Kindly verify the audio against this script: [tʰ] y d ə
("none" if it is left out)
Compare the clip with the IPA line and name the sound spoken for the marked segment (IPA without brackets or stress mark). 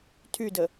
tʰ